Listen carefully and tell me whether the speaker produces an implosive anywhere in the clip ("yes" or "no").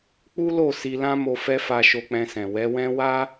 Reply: no